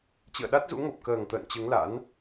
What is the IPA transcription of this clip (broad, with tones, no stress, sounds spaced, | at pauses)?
t͡ɕ ɨ̰˧˨ ə̯ ɗ a˦˥ t̚ z ṵ˧˥ ŋ o˨˩ p̚ k əː˨˩ ŋ t̪ ə̰ː˧˨ n t͡ɕ ɨ˨˦ ŋ l a̰˧˥ n